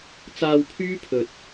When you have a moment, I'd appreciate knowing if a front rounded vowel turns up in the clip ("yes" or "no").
yes